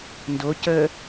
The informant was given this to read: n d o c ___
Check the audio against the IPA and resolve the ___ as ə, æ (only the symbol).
ə